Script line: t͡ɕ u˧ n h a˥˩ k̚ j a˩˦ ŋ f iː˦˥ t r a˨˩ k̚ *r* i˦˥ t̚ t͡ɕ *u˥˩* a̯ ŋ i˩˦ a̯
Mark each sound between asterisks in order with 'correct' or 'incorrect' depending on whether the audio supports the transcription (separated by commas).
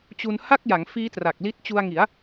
incorrect, incorrect